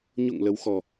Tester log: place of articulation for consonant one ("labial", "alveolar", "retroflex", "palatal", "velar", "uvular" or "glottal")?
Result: palatal